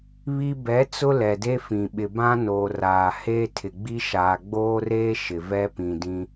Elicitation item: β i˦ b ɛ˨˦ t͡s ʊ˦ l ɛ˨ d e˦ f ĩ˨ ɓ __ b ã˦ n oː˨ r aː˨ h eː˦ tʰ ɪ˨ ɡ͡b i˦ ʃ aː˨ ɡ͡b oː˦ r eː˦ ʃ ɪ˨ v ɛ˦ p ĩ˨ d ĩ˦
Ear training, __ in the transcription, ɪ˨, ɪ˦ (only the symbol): ɪ˨